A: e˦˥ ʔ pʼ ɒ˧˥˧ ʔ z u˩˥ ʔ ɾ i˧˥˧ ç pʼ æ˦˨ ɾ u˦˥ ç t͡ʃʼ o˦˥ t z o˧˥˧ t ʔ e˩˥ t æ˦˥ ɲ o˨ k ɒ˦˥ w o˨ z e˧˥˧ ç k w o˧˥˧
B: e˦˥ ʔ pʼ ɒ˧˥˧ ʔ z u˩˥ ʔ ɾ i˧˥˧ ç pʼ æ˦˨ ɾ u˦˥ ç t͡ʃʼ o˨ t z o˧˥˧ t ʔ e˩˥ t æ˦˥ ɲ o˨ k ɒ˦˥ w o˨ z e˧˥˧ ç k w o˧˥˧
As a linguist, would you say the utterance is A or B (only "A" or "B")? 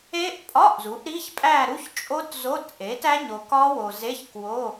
A